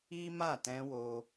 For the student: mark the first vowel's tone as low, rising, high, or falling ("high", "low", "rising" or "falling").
high